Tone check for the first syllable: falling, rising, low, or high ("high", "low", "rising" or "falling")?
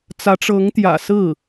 rising